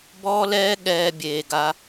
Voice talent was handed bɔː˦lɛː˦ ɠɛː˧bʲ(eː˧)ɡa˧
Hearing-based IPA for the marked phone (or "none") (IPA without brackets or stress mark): eː˨